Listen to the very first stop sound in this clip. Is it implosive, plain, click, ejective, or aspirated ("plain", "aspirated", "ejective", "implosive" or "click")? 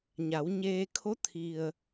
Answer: aspirated